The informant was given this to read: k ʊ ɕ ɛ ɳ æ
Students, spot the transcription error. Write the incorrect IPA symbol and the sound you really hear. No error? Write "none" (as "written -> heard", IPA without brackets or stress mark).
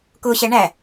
none